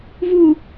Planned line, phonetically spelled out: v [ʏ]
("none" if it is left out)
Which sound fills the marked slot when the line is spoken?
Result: u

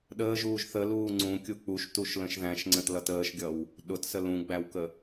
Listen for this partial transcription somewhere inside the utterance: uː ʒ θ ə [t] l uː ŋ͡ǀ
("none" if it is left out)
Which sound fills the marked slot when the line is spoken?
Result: none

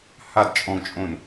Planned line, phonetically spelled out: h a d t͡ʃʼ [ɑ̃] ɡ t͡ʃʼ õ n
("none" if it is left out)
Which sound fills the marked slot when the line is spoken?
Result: ɔ̃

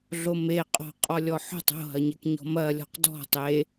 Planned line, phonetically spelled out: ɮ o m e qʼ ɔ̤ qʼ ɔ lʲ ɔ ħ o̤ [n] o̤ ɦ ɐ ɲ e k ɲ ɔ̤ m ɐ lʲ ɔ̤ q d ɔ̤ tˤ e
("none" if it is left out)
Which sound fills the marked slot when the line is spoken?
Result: tˤ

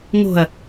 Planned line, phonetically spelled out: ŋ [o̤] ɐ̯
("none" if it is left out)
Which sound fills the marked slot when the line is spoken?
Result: o̤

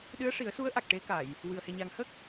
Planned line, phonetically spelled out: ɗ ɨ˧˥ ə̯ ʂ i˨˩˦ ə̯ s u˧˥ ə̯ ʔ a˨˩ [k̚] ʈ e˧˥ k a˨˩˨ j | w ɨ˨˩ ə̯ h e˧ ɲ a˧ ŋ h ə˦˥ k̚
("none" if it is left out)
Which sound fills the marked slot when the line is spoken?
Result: k̚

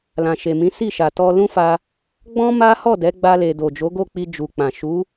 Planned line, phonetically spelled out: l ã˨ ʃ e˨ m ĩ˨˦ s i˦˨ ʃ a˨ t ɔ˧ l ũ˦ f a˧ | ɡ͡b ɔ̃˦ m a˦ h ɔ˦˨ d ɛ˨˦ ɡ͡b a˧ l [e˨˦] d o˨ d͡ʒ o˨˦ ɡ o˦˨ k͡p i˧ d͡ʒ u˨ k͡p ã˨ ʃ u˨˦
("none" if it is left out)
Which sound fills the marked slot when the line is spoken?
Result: e˨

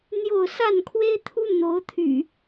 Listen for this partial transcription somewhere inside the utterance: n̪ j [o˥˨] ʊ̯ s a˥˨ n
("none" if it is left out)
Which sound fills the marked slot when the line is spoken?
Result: o˥˨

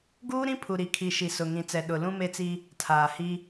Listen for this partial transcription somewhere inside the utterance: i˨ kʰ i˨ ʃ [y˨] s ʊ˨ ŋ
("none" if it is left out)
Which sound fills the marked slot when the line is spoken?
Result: i˨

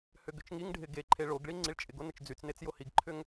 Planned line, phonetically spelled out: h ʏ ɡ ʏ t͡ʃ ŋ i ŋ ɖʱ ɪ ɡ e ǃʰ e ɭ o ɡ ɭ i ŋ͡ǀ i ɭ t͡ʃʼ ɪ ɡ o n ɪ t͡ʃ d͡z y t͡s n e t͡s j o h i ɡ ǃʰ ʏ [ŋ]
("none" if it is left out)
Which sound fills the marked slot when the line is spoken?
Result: ŋ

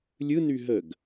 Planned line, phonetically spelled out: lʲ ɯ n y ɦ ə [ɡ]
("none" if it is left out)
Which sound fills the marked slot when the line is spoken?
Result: ɡ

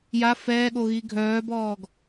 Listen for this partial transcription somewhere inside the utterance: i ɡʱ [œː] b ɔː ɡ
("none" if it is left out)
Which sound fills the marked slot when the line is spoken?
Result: œː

